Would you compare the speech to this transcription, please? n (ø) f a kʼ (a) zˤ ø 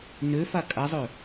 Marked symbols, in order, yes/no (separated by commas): yes, yes